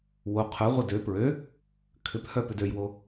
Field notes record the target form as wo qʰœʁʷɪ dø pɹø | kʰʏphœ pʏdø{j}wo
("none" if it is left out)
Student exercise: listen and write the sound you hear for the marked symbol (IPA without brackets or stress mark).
j